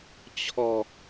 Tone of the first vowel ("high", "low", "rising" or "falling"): low